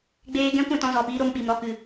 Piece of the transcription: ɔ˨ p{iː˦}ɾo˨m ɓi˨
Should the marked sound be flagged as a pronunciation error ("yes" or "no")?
yes